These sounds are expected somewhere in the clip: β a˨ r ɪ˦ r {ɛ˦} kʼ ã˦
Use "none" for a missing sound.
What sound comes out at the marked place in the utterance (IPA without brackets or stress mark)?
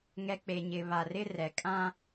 ɛ˨